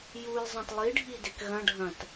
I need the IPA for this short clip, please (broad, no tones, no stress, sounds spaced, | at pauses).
j u j zˤ ɐ̃ t lˠ i ɖʱ i d e k ɣ ɐ̃ ɖʱ ɐ̃ t